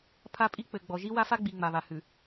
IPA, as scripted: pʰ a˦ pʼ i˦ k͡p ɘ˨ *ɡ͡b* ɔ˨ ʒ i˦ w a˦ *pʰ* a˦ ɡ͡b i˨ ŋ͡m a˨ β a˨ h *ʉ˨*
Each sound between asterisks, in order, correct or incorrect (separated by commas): correct, incorrect, correct